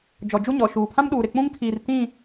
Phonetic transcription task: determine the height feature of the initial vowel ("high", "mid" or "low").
mid